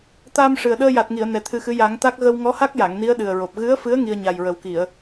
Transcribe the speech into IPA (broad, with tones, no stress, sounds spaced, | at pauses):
t̪ a˧ m ʂ ɨ˨˩ ə̯ ɗ əː˧ j a˨˩ t̚ ŋ i˨˩˨ ə̯ n ɛ˨˩ t̪ʰ ɨ˧ x ɨ˧˥ j a˨˩˦ ŋ t̪ a˦˥ k̚ ɣ ə˧ w ŋ ɔ˧˥ h a˦˥ k̚ j a˨˩˨ ŋ n i˧˥ ə̯ ɗ ɨ˨˩ ə̯ ɹ o˨˩ p̚ ɣ ɨ˧˥ ə̯ f ɨ˧˥ ə̯ ŋ i˧ ə̯ ɲ a˨˩ j ɹ ə˨˩ w k i˨˩˨ ə̯